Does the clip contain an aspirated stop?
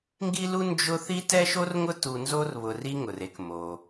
no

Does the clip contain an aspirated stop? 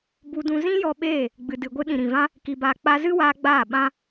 no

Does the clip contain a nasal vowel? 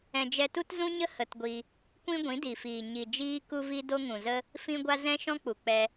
yes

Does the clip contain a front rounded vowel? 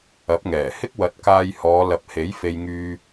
yes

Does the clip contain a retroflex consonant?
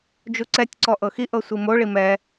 yes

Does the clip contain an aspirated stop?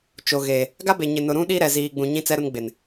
no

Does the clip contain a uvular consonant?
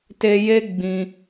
no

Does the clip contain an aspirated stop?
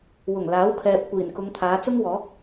yes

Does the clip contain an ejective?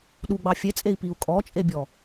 yes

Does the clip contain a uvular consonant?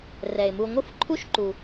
no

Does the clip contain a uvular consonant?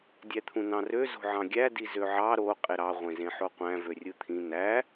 yes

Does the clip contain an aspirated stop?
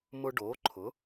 yes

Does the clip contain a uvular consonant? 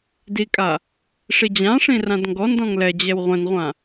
yes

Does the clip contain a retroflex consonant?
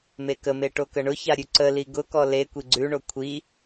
yes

